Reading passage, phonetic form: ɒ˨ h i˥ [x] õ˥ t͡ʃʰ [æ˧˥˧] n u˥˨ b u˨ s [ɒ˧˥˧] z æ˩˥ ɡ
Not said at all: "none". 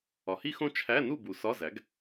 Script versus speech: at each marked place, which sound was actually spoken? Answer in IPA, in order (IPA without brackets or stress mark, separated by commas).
x, æ˧˥˧, ɒ˧˥˧